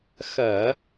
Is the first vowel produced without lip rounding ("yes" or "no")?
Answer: yes